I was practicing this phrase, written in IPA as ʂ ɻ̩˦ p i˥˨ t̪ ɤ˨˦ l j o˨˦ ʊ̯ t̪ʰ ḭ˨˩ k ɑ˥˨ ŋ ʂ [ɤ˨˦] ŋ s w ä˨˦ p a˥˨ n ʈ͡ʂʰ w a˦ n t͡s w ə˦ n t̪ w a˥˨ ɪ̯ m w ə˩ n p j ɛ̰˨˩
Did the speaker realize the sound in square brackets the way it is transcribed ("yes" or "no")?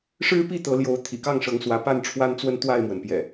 yes